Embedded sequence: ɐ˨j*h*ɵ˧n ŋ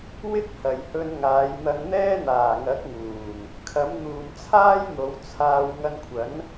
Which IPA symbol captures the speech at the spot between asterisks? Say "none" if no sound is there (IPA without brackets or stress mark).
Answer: h